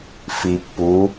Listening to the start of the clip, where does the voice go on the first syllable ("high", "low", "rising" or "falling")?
low